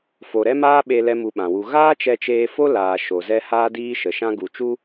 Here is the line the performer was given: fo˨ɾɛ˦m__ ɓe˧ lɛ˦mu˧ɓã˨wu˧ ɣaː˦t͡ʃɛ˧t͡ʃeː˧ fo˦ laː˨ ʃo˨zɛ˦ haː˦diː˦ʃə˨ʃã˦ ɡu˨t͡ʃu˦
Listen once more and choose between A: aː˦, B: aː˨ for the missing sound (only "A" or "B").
A